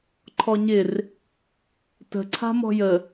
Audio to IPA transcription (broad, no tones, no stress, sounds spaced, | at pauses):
ǃʰ ɔ ɲ ɪ r | t ə̤ ǀʰ a̤ m ɔ̤ j ə